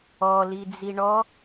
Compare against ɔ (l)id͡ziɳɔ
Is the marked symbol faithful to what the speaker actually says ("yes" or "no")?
yes